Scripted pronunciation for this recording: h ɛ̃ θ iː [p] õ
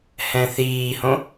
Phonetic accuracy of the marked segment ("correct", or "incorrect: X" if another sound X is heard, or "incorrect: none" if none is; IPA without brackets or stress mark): incorrect: h